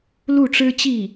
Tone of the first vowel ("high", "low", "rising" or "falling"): falling